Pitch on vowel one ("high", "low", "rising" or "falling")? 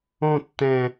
falling